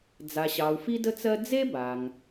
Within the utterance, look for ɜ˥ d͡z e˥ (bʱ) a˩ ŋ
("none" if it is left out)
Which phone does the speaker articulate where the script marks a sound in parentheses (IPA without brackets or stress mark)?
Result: b